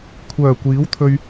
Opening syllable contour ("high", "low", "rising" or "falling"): low